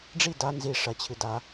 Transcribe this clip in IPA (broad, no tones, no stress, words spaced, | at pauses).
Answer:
ɖ͡ʐi da nzi ʂɐ t͡ɕʰɨda